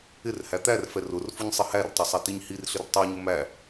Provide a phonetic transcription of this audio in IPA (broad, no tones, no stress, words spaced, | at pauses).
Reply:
ɪr hæt̪ærfɛ rʊr fʊɲsˤɪhærtˤʌ sˤɛtiɲhirɬɪr tˤæɲʊ mæ